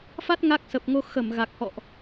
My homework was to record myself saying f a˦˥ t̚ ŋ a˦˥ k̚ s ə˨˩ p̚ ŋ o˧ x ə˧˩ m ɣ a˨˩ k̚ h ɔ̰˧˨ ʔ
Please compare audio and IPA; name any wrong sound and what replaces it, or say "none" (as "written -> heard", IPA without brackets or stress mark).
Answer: none